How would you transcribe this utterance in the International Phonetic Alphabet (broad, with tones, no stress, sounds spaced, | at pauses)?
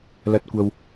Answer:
l ɐ˨˥ t̚ kʷ ɐ˨ w